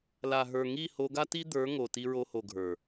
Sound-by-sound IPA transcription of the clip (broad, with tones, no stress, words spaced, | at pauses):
la˨ɦə˞˨ŋi˦˨ ho˧ɡa˦ti˦d̪ə˞˨˦ ŋo˨ti˧ɹo˧ho˨ ɡʱə˞˨